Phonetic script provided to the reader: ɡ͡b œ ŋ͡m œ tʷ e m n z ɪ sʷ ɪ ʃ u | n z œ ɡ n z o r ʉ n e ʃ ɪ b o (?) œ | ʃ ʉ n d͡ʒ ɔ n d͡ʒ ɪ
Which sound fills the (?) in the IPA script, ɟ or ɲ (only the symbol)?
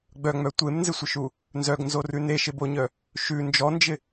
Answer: ɲ